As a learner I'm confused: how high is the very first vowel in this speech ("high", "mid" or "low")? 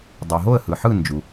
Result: high